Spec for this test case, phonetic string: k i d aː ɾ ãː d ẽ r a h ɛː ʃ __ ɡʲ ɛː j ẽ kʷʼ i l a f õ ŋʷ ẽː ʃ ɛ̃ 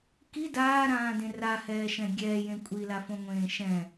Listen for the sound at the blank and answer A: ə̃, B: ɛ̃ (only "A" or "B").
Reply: B